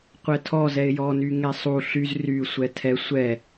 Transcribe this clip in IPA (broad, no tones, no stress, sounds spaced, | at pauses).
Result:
qʷ ɛ tʰ ɔ z ɛ ɪ̯ j ɔ n y ŋ ɛ sˤ u ɬ y z r y sʷ ɛ tʰ ɛ sʷ ɛ